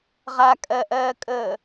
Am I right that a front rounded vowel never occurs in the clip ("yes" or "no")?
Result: yes